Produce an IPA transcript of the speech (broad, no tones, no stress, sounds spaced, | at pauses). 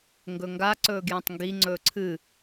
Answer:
ŋ ɡ ɵ ŋ ɡ a ǀ ɵː ɡ j ẽ tˤ ŋ ɡ i ŋ͡ǀ ɵː ǀʰ ɨ